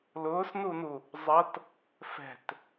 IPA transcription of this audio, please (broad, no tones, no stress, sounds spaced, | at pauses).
l ʊː s n u n u | zˤ ʌ t | f ɛ̤ t